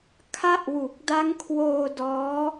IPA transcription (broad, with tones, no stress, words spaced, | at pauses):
kʰa˦˥ʔwu˨˩k̚ da˦˥ŋkʰwoː˧ dɔː˦˥